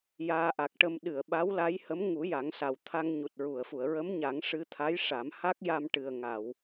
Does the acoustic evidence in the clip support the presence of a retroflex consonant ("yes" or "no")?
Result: yes